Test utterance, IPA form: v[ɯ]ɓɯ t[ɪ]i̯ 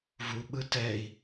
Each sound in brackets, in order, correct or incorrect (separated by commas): incorrect, incorrect